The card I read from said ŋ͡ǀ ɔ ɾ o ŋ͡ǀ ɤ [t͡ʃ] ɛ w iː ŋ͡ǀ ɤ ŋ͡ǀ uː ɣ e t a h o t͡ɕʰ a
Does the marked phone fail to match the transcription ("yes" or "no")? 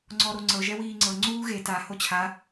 yes